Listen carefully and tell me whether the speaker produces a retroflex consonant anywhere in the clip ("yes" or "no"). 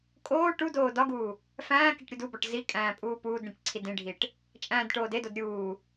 yes